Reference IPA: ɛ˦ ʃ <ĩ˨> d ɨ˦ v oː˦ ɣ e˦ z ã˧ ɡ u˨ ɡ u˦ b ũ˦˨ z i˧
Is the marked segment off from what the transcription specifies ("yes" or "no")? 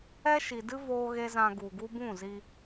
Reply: yes